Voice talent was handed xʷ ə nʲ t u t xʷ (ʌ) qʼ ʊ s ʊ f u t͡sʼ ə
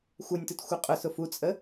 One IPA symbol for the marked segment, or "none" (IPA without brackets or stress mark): ʌ